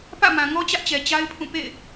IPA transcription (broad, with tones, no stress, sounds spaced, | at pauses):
p ä̰˦˨ m ã˨ ŋ ɔ˦ t͡ɕ ä˦ ʔ t͡ɕ ɛ˨ t͡ɕ a˦ ɪ̯ pʰ ũ˦˨ p ḛ˦˨ ɪ̯